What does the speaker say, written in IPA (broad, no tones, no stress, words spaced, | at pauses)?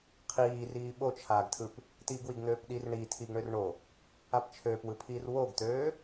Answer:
qʰiːriː ɓot͡ʃʰaːɡtʰɯp | tiːɡwiɡn̪øːpɗir ɳi tʰiɡɳørɳo | apt͡ʃʰøːpwɯpʰiːr woɡt̪øː